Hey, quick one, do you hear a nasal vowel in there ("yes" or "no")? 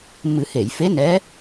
no